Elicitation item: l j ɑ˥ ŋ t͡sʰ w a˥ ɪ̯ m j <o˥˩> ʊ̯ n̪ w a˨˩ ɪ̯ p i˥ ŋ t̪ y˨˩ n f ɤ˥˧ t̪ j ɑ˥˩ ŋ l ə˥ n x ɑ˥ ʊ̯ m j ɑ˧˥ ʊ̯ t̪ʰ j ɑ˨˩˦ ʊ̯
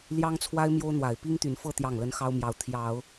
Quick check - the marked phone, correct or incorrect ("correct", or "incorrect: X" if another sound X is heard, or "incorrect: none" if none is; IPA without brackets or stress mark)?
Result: incorrect: o˥